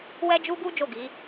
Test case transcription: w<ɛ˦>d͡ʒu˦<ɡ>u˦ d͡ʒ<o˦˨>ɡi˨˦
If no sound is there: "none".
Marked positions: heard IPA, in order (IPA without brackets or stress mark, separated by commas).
ɛ˦, ɡ, o˦˨